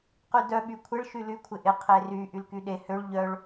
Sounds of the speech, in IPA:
qydœ ɓykʷʰɪɭ ʃyly kʷʰɪʔɪ qʰery ʔylkyɗe høɭ ʎœɭ

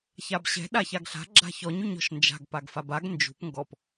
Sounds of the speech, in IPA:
çabɕɛ̤ ɗaçaɡɬa̤ ɡ͡ǁa̤çɔɲ ʉɲɔ̤ʃnd͡ʒa̤ɡ paɡfabaɡ nd͡ʒṳp ŋɡɔp

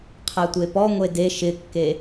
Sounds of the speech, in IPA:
qʰætʷepɔ ŋʷede ʃɪkːe

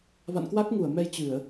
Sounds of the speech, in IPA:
va̰˧˨nkwa˦˥k̚ŋu˧˩ə̯ mɛ˧j t͡ɕɨ˧˩˨ə̯

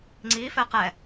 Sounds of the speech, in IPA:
ŋ͡ǀifɛ qɛ

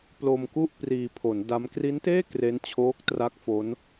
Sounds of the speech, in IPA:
plo˧mku˥˩ʔ priː˧pʰo˩˦n da˦˥m kri˦˥nteː˥˩ kre˦˥n t͡ɕʰoː˦˥k̚tra˦˥k̚ fo˦˥n

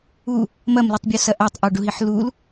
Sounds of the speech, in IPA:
u | mɐmlitˤbʲusɐ ʔatˤʔɔɖuɦiħ lul

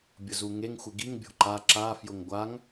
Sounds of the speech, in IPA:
bʲʊzuŋeŋ xʷɪɡiŋ bʲo̤ǃa ǁa fjʊŋɡʷaŋ

